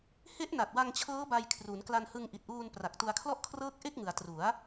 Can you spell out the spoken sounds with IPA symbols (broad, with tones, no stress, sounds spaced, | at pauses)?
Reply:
h e˦˥ ʔ n a˨˩ t̚ w a˧ ŋ t͡ɕʰ ɤː˦˥ b a˧ j kʰ r u˩˦ n k l a˧ n h ɯ˧ ŋ ʔ i˨˩ t̚ ʔ uː˧ n p r a˨˩ k̚ t u˧ a̯ kʰ l ɔ˥˩ ʔ kʰ r ɤː˥˩ k̚ ʔ e˥˩ k̚ ŋ ɯ˩˦ a̯ t r u˩˦ a̯